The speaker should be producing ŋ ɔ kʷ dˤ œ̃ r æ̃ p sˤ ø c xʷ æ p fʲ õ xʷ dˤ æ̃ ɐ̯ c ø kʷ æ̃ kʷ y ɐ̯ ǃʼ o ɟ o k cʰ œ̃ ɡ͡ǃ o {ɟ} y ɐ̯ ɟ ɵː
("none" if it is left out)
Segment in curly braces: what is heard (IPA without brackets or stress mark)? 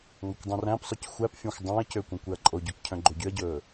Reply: ɟ